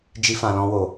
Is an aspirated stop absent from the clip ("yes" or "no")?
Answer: yes